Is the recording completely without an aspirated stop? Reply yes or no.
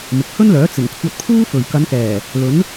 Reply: no